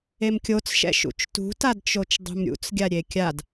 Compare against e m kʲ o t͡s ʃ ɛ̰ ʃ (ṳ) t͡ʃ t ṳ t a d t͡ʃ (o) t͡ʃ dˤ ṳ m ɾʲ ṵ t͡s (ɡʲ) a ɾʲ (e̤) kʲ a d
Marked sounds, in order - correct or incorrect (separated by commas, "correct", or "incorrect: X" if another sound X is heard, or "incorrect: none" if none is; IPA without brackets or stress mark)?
incorrect: ṵ, correct, correct, incorrect: e